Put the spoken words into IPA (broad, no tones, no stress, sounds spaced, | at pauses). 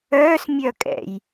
œː s mʲ œ kʼ ɛ̰ j